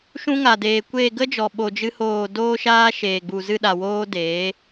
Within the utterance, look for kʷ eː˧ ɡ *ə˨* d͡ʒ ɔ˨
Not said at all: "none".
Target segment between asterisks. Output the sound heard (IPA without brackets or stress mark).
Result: ə˦